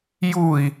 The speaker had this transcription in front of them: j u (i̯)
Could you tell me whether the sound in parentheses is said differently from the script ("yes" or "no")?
no